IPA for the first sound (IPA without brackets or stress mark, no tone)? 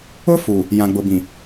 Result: ʊ